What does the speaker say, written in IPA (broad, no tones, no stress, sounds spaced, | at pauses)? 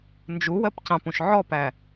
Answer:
n d͡ʒ u w ɜ p c ɑ̃ p ũ ʃ ʕ ɔ p æ